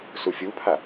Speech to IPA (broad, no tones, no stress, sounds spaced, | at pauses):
s u fʲ u pʰ a